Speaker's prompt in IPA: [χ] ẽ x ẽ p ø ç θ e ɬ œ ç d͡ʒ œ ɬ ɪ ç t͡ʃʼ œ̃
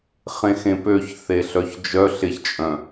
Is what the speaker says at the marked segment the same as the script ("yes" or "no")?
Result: yes